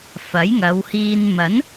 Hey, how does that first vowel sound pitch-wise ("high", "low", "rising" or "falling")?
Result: rising